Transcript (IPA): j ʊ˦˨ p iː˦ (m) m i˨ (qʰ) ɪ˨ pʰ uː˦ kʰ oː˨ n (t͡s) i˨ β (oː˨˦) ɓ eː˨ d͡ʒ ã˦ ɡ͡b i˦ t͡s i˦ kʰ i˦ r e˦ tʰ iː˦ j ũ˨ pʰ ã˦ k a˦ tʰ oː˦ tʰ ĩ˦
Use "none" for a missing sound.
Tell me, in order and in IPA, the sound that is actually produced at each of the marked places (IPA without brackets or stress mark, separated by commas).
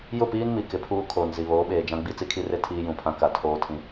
n, k, z, oː˨˦